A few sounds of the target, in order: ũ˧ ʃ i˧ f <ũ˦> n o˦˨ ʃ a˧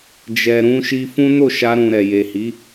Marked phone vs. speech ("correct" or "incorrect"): correct